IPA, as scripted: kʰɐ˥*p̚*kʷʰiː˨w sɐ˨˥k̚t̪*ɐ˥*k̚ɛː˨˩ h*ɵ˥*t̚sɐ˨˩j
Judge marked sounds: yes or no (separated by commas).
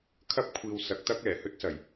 yes, yes, yes